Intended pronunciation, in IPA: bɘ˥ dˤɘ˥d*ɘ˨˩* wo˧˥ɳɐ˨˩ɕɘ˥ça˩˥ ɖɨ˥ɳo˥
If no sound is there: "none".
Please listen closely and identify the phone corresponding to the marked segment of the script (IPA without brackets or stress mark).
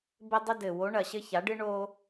ɘ˨˩